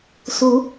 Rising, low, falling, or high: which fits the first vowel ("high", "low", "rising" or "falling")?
rising